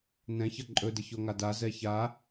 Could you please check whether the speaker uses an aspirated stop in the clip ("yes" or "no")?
no